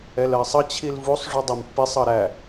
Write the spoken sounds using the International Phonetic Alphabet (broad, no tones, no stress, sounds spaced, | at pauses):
ɛ l ɜ sˤ ʌ t͡ɕʰ i l v u sˤ ʐ u dˤ ɛ m pː i sˤ ʌ ɾ æ